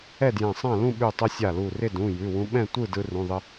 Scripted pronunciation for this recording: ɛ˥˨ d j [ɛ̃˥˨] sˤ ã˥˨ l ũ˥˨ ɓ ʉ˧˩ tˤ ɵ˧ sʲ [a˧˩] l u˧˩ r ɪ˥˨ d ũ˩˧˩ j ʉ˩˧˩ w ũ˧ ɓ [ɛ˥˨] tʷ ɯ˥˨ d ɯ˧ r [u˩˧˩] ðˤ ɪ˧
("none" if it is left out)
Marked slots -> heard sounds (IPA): ɛ̃˧˩, a˧˩, ɛ̃˥˨, ũ˩˧˩

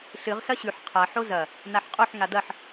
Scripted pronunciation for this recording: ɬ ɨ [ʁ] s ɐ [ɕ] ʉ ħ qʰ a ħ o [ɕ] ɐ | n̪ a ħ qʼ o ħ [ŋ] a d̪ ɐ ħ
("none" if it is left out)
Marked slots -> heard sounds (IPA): ʁ, ɕ, z, ŋ

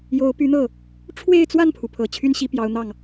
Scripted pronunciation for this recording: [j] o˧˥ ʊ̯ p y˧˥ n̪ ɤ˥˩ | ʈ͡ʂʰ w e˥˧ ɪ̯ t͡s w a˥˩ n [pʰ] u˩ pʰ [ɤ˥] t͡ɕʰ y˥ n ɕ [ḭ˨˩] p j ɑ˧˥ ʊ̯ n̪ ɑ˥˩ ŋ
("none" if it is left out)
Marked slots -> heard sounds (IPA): j, pʰ, ɤ˨˩, i˧˥

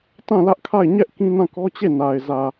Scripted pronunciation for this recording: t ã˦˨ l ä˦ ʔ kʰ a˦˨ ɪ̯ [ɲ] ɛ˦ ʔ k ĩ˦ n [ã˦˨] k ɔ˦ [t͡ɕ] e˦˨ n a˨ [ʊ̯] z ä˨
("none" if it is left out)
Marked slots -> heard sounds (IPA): ɲ, ã˦˨, t͡ɕ, ɪ̯

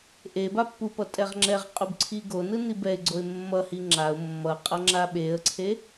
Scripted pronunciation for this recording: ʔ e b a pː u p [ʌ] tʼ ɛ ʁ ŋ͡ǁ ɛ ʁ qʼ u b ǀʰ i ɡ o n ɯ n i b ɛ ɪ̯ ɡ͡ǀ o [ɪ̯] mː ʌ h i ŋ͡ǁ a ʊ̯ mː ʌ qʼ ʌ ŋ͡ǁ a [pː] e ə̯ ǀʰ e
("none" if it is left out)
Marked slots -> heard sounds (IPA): ʌ, ɪ̯, ɓ

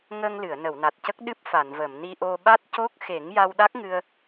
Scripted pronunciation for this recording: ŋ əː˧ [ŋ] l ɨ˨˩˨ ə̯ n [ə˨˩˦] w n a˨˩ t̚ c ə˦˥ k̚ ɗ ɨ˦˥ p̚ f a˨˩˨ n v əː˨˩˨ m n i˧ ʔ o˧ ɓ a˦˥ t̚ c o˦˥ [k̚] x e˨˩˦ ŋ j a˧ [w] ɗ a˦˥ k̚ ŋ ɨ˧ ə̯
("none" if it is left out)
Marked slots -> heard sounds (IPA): ŋ, ə˨˩˨, k̚, w

